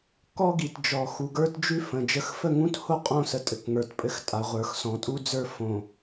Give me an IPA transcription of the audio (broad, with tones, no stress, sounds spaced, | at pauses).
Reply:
k ɔ˦ ɡ i˨ t d͡ʒ ɔ˨ x u˨ ɡ ə˞˦ t d͡ʒ ʉ˦ f ə̃˨ d͡ʒ ə˨˦ x f ə˦˨ ŋ ũ˦ t h o˦ qʼ õ˦˨ s ə˨ tʼ ɘ˨ k ŋ ə˞˨ t pʼ ɘ˦ x tʼ a˨ ʁʷ ə˞˨ x s ɔ̃˨ tʼ u˦ d͡z ə˞˦ f õ˨